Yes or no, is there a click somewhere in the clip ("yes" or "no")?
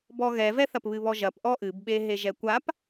no